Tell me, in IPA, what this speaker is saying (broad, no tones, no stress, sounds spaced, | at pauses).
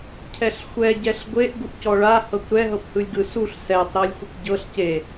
cʰ ɛ ɬ xʷ ɛ ɟ ɛ ɬ ɡʷ e ʔ ɡ u ʔ c ɔ ɭ a h ɤ kʷ ɾ ɛ ɦ ɤ p h ɯ lʲ ɡ ɯ s u ɬ s ɛ tˤ ɾ ɤ lʲ xʷ i kʷ ɟ ɤ ɬ c e